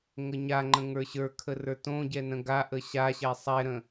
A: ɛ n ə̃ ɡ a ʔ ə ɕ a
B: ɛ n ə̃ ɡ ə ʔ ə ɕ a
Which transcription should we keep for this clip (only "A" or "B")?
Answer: A